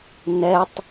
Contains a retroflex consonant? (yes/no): no